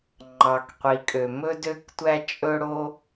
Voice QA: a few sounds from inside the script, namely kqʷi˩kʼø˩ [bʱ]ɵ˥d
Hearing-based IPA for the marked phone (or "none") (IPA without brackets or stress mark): m